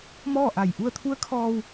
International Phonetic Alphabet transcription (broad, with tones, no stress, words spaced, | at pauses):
mɔː˥˨ʔa˧˩j ʔu˧ə̯t̪ʰu˧˥ə̯kʰɔː˧w